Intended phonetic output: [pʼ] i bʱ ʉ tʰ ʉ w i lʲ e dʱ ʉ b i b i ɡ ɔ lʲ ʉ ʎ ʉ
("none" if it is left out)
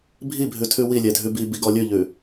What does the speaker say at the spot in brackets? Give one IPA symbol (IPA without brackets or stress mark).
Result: bʱ